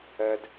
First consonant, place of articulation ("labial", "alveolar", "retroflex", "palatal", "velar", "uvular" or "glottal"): alveolar